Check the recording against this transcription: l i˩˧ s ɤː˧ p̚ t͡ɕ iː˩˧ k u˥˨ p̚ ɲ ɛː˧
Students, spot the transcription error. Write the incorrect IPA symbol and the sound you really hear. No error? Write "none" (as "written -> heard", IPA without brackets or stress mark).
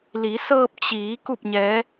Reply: ɛː˧ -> ɛː˧˥